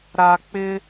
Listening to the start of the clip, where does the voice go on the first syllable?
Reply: low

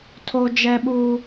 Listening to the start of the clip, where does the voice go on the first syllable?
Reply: high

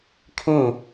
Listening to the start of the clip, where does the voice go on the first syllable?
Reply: falling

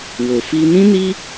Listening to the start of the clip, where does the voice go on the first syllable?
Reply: low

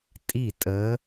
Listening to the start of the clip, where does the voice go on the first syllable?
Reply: falling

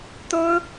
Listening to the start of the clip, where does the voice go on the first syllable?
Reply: high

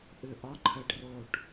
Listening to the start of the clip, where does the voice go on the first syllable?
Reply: low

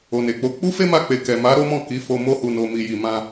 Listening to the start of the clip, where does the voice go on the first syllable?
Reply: low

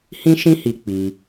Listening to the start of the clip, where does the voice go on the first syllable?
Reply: high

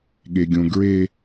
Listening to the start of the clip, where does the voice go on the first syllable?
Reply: high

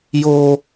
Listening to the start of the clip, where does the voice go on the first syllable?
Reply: low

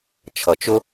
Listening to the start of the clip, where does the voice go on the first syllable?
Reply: low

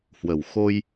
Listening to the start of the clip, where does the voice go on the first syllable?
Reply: low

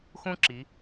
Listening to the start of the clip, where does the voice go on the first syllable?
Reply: high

